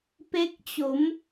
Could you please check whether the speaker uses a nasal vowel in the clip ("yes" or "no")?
no